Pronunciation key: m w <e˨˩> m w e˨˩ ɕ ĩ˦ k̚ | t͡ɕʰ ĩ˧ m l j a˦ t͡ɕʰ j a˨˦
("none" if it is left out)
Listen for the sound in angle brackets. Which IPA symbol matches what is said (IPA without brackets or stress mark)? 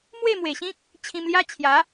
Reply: e˥˧